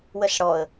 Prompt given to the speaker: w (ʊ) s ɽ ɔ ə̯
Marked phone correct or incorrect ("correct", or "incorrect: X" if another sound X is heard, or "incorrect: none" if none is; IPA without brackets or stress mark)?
incorrect: ə